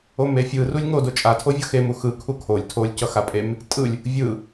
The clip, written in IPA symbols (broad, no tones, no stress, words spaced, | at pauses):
omefʲɯ rulʲŋo dot͡ʃʼatʰo vʲʌxe muxɯ kʰukʰolʲ tʰolʲcʌ xapʼem | tʼɯlʲ | vʲɯ